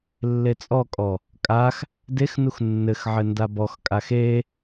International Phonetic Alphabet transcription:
lːet͡sʼɔkʼɔ | kʼax | dexnux nːɘxʕɘ ndabɔxkʼax e

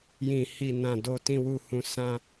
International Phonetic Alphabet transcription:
jĩ˨hi˨nã˨ do˨tĩ˨wu˨hũ˨ sã˧

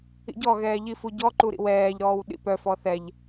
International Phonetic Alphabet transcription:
ḭɟɔɣɛː ʎifuɟɔǃu ɾḭwɛːʎɾɔːw ɗḭpœfɔ θɛʎ

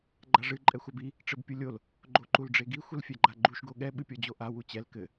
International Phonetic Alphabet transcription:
ɡ͡ǃaʐɨ ǃʼɛxʷabi | ʈ͡ʂɘbpʲulʲol | ɡ͡ǃoǃulɖ͡ʐeɡi xʷɨlfʲɛɡ͡ǃaɡ͡ǃuʃ ɡoɠɛ ɓɨpʲɔd͡ʑoʔa wut͡ɕɛl kɘ

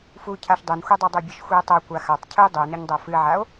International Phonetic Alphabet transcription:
fu cʰaʃdˤʉnxʷidˤi dˤubʲɵʃxʷie̯tˤo kʷaxatˤ cʰɨe̯dˤunɵɲ dˤofɨʕao̯

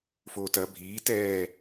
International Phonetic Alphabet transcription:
foːtɐ bʱiːt ɛː

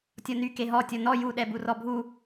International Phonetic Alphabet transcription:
tʲɔny keɦɔ tʲɔnɔ ju ɗɛburɔbʱu

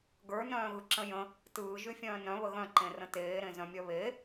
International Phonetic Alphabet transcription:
ɡə˞ nœ̃ːɣɯǁə̃jə̃ | tɯː ʒyfʲœ̃ːnœ̃ βəɣœ̃ ǃẽrə̃teː ɾẽzœ̃mʲœβe

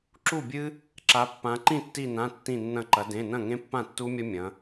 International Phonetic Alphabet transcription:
ǁu˥˩bʲɨ˦˥ | ǁa˩˧pːã˩˧ ǃĩ˥˩tːi˧˩nã˩˧˩ tːĩ˧˩nːɐ̃˧˩ǃɐ˩˧ dẽ˩˧˩nɐ̃˥˩ŋẽ˦˥ pːã˥˩tːu˦˥mʲɐ˦˥mʲɐ̃˩˧

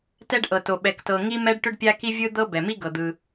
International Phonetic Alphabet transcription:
tɛ˥ɖʔɤ˩to˩ ɓɛ˩ktɤ˩ŋi˥mɛ˥ɖ ʈʏ˥ɖpʲa˥ki˥vʲɯ˥ d̪ɤ˥ bɛ˩mi˥ ɡɤ˩d̪ɯ˩

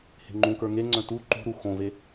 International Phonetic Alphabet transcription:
he̤ŋ͡ǃũkə˞ ŋeŋ͡ǀœ̃ tu ǃṳɾu xõve

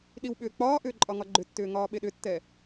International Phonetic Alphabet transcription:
ɗiwɓʏːk͡pɒːʔʏː ǃʼɒŋɒɡ͡ǃʏtːʏː ŋɒːɓeɗʏtːɛ

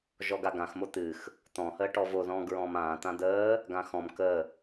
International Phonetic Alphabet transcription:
ʒɔɡaɡãxmo t̪ɨx | t̪ɔ̃həː ʈɔvo ðɔ̃ːɡɹɔ̃ːmãː t̪ãd̪əː | ɡãxɔ̃m kə

